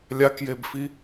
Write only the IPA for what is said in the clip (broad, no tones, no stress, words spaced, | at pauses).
lʲakjebfi